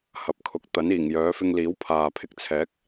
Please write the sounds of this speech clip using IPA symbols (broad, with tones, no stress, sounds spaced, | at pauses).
h ɐ˨˥ p̚ kʰ ʊ˨˥ k̚ t̪ ɐ˨˥ n iː˨˩ ŋ j œː˨˧ f ɪ˧ ŋ l iː˨˥ w pʰ aː˨ pʰ ɪ˧ k̚ t͡sʰ ɛː˨˥ k̚